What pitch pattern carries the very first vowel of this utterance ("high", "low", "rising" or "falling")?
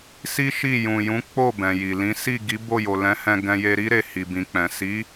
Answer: high